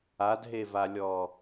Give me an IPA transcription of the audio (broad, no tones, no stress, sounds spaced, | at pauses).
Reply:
a d ɦ e v a lʲ ɔ